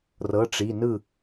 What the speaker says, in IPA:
r ɤ˩˧˩ ʈ͡ʂ i˩˧˩ n ɯ˥˩

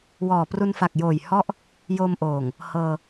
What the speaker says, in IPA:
w ɔː˨˩ p r u˧ n f a˨˩ k̚ j oː˨˩ j h ɔ˦˥ ʔ | j o˧ m ʔ oː˨˩ ŋ | h ɤː˧

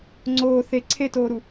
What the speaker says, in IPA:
ŋ͡ǀ oː θ e ǀʰ e t oː ɾ u

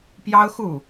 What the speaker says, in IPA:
p j ɑ˥ ʊ̯ x u˥˩

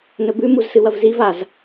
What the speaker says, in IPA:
n ɵ b ʉ m u z s ɨ w ɐ v z i v a z

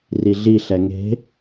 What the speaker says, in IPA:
r i ɮ i ɬ ɛ ŋ e̤

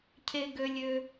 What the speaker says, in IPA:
cʰ e˦ ɡ ø˦ lʲ ø˦

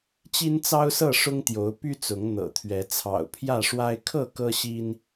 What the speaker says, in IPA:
t͡ɕ i˦ n t͡s ɑ˦ ʊ̯ s ɤ˥˨ ʂ ʊ˦ ŋ t̪ j o˨˦ ʊ̯ p y˦ t͡s ʊ˨˦ ŋ n̪ ɤ̰˨˩ t̪ʰ ɥ ɛ˨˦ t͡sʰ ɑ̰˨˩ ʊ̯ pʰ j ä˥˨ ʂ w a˦ ɪ̯ kʰ ɤ˥˨ k ɤ˦ ɕ i˦ n

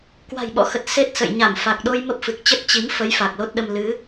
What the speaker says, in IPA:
k w a̤˨˩ j ɓ ɔ̰˧˥ x ə˨˩ t̚ s e˦˥ t̚ s ə̰˧˨ j ɲ a˧˩ m f a˨˩ k̚ ɗ o˧ j m ə˦˥ p̚ f ɨ˨˩ k̚ t͡ɕ ə˦˥ t̚ t͡ɕ i˨˦ m f ə˨˦ j f a˨˩ k̚ l o˦˥ t̚ ɗ ə˧ m l ɨ˨˦

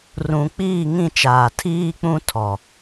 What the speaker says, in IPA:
r ũ˨ k͡p iː˦˨ ŋ ĩ˦˨ t͡ʃ aː˨ tʰ iː˦ k͡p ũ˦ tʰ ɔ˨

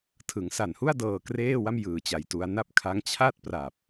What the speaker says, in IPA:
tʰ ɯ˩˦ ŋ s a˨˩ n h u˥˩ a̯ d ɤː˧ k r eː˥˩ w a˥˩ m j ɯː˨˩ t͡ɕ a˨˩ j t u˧ a̯ n a˥˩ p̚ kʰ a˦˥ ŋ t͡ɕʰ a˥˩ t̚ p r a˨˩ p̚

